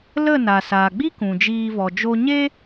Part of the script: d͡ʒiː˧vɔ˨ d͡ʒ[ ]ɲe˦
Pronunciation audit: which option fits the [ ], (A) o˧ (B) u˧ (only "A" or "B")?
A